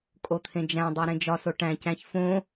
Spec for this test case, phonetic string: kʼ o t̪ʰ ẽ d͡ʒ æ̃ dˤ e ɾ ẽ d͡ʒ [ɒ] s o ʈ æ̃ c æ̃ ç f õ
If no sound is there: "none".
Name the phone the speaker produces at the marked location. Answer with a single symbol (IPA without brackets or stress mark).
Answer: ɒ